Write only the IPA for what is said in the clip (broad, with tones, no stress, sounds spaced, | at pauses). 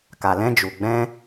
k a˨ l ɛ̃˧ d͡ʒ u˨ ɡ͡b ɛ̃˧